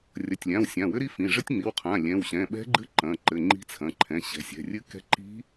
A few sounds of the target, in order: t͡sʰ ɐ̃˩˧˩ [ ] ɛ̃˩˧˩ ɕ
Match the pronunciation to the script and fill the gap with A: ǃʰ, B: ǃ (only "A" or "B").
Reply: A